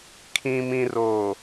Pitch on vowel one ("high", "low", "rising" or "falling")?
low